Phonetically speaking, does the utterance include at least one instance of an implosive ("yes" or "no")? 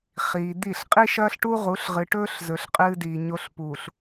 no